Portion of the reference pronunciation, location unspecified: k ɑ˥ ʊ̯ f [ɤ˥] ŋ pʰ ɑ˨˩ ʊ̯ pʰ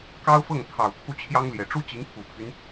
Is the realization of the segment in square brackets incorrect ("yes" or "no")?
yes